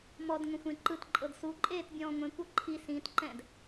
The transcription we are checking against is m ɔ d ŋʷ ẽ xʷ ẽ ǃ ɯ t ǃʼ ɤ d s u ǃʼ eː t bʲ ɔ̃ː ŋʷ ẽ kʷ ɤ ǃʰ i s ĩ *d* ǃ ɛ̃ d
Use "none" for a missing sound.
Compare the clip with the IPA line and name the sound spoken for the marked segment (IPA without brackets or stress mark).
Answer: t